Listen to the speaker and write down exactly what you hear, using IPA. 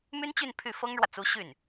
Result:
m y˥ n t͡ɕ y˥˧ n pʰ y˥˩ f ɤ˥ ŋ ɻ w ä˨ t͡s u˧˥ ɕ y˥˩ n

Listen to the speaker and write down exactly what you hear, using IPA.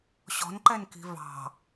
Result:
ɕ ɔ̤ n ǃ ɛ n k i̤ v ɑ̤

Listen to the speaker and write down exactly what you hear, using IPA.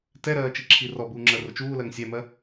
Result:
t ɛ ɾ ɜː t͡ʃ i ǁʰ i r ɔ b uː ŋ͡ǁ ɜ r ʊ t͡ʃ uː l ɜ ŋ sʲ æ m ɜ

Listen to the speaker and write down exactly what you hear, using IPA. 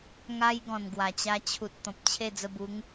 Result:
ŋ a˧ j ɡ ɔ̃˨˩ n ɡ w a˨˩ t͡ɕ a˧ t͡ɕʰ u˨ t̚ t̪ ɔ̃˨ p̚ t͡ɕʰ e˥˧ d͡z ə˧ b u˨˦ ŋ

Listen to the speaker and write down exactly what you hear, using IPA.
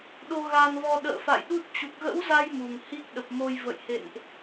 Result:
ɗ o˧ ɣ a˧ n v ɔ˧ ɗ ə̰ː˧˨ f a̰˧˨ j ɗ u˦˥ t̚ t͡ɕ u˨˩ k̚ ɣ ə̰˧˥ w z a˧ j m u˨˩ ŋ h i˦˥ k̚ ɗ ə˨˩ p̚ m o˧ j v ə̰˧˨ j h ḛ˧˨ n ʔ

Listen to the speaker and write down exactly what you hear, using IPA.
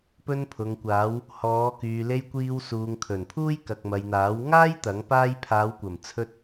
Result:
p ɵ˧ n pʰ ʊ˨ ŋ kʷ aː˨˧ w | h ɔː˨˧ k yː˨ l e˧ j kʷ iː˧ w s uː˨ ŋ kʰ ɵ˨˩ n pʰ uː˥ j k ɐ˨ k̚ m ɐ˨ j n̪ aː˨˥ w ŋ aː˥ j t̪ ɐ˨˥ ŋ p aː˥ j pʰ aː˨˧ w kʷ ɐ˨˩ m t͡sʰ ɵ˧ t̚

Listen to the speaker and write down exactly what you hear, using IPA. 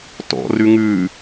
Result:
t ɔ̰ r ʉ ŋ ʉ

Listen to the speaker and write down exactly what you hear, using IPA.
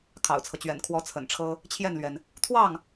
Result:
kʰ ɑ̰˨˩ ʊ̯ t͡sʰ ɤ˦ t͡ɕ ɥ ɛ̰˨˩ n kʰ w ɔ˧˥ t͡sʰ ə̰˨˩ n ʈ͡ʂʰ ɤ˥ | t͡ɕʰ j ɛ˥˩ n l ɥ ɛ˩ n | t̪ʰ w ɑ˥˩ ŋ

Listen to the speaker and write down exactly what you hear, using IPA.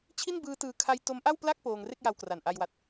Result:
t͡ɕʰ i˥˩ n b ɯː˦˥ t ɯː˧ kʰ a˧ j t o˦˥ m ʔ a˥˩ w p l a˥˩ k̚ p oː˧ ŋ r e˥˩ k̚ j a˧ w k r a˨˩ n ʔ a˧ j w a˨˩ t̚

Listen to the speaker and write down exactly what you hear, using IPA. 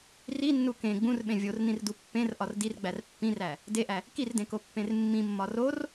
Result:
r i nː u k ẽ ɡ͡b ũ r ɓ ẽ vʲ o r n ĩ r d u pː ẽ r ʔ ɒ r d i r ɡ͡b æ r pː ĩ r æ | d e ʔ æ | k i r d ẽ k o pː ẽ r mː ĩ mː ɒ r o r

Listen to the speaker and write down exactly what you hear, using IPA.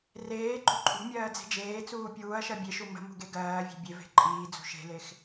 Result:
r eː ɡ͡ǃ u ǃʼ ṳ mʲ ɜː d͡z e̤ d͡ʒ eː t͡s uː pʲ uː ɐ̯ ʃ ɜ bʲ e ʃ u m ə̤ m ṳ ɡ e ɡ ɜː vʲ e̤ bʲ e v e̤ ǃʼ iː d͡z ṳ ʃ e̤ l e x

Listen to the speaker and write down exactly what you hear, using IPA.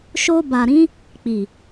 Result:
ʃ o˧ b a˨ ɾ ĩ˨˦ | k͡p i˨

